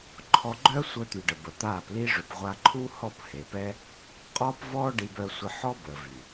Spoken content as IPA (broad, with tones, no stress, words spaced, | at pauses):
ǃʰɔ˧ɡ͡ǃœː˦sʷœ˧t̪y˨ ɖə˨bə˨t̪aː˦˨p li˧ʐø˨p ʁʷa˧ǃʰu˦hɔ˦˨p he˨pɛ˦ | qʼɔː˦pvɔː˦ ɖi˧bœ˧sʷə˧ ħɔ˦bəː˨vy˨